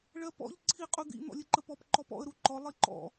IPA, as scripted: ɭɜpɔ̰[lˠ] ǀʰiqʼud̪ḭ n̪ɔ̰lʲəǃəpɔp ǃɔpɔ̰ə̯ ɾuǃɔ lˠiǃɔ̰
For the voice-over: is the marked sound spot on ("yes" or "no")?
no